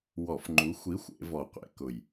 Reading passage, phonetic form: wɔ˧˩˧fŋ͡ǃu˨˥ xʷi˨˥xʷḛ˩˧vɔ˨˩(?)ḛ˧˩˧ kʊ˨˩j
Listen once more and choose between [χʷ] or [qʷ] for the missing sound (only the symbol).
qʷ